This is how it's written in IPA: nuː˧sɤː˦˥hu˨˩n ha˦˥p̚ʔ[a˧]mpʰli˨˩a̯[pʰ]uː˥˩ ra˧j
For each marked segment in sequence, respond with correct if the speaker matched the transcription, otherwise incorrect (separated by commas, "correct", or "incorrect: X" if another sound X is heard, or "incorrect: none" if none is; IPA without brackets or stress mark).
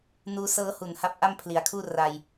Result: incorrect: a˥˩, incorrect: kʰ